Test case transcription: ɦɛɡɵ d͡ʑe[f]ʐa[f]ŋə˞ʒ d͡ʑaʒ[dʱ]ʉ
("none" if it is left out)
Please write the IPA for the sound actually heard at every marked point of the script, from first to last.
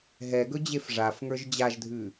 f, f, dʱ

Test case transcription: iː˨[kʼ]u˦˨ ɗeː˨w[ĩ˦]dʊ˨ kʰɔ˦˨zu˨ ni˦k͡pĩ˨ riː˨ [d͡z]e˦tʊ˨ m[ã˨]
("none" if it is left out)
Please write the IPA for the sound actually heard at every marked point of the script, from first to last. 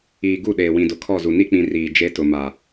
ɡ, ĩ˨, d͡ʒ, a˨

